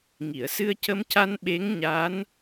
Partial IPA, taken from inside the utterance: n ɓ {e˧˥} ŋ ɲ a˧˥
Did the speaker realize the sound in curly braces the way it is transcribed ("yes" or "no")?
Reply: yes